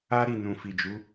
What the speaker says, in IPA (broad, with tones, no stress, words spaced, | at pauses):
a˦ɾi˦˨ nũ˨fi˨d͡ʒu˨˦